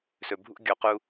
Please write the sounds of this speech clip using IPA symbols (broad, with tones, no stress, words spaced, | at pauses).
sɵ˨bʱṵ˦ɡʲo˨˦qu˧